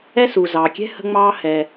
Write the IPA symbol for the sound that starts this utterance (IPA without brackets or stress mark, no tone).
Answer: ɛ